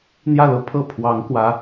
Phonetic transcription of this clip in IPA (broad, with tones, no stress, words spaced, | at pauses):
n̪jä˥˩lɤ˥pʰɤ˥˩ pʰwɑ˧˥ŋkwä˧˥